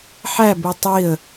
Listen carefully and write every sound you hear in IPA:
ħ æ b u tˤ i ə̯

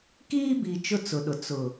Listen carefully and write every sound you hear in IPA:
k iː˦ b i˨ t͡ʃ ʊ˦ t͡s ʊ˨ ɗ ʊ˨ t͡s ʊ˨

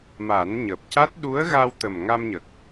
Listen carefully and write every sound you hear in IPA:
m a˨˩˦ n ɲ əː˨˩ p̚ c a˦˥ t̚ ɗ u˧˥ ə̯ ɣ a˧ w t̪ ə˨˩ m ŋ a˧ m ɲ ə˨˩ k̚

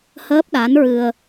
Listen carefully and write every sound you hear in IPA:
h əː˦˥ p̚ ɗ a˧˥ n ɹ ɨ˧ ə̯

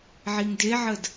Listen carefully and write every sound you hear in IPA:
ʕ i ŋ d e ʕ ə d

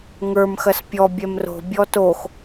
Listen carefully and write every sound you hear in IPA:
ŋ ə˞ m x ɐ s pʲ ɔ bʲ ɛ m r o̤ bʲ ɔ t o x

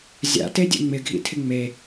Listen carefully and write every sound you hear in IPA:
zʲ a̰ t e dʲ ḛ ŋ͡m ɪ ɡʱ ḭ tʰ ɪ ŋ͡m e

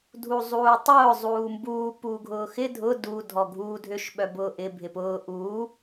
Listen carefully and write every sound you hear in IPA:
dʱ u zˤ uː tˤ ʊː zˤ uː m b uː p uː ɡʱ ʊː x ɪ dʱ ʊ d u dʱ ɔ ɡʱ uː dʱ ʏ ʃ ɓ œ b ʊː ʔ ɪ bʱ ɪ p ʊː ʔ uː

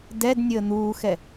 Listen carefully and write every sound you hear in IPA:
d ɛ d nʲ əː n̪ uː x ɛ

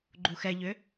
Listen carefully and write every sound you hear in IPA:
ɡ͡ǃ u x ɛ ʎ ʏ

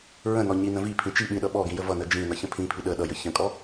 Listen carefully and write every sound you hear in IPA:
ɹ ə̃ n ɔ ɲ i n ə̃ v i pʰ ĩ t͡ʃ i ɓ ĩ ɗ ʌ ɓ ɔ ɡ ĩ j ə v ʌ n ə d͡ʒ ĩ n ʌ ç ə̃ pʰ ĩ pʰ i ɗ ə ɗ ʌ j ə ç ə̃ kʼ ɔ

